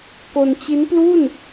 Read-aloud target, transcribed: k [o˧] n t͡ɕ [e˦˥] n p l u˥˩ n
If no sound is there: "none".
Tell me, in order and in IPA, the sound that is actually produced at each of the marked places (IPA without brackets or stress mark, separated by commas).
o˧, i˦˥